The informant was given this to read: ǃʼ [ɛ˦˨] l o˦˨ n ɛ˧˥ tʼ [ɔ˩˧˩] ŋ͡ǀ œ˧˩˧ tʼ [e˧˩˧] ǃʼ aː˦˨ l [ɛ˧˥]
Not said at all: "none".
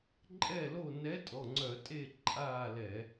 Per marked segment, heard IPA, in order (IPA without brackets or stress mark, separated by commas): ɛ˦˨, ɔ˩˧˩, e˦˨, ɛ˧˩˧